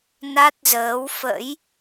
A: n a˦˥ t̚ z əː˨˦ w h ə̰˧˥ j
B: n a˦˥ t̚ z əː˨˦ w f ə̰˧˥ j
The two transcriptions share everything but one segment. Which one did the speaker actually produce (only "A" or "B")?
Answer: B